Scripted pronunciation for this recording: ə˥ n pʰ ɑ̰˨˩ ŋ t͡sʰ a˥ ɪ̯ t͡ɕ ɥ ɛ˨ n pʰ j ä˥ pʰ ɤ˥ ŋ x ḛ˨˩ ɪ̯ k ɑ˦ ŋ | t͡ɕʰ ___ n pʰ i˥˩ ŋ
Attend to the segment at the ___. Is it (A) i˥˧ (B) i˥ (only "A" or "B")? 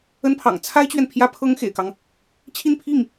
A